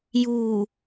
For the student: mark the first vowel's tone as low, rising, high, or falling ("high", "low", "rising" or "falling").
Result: low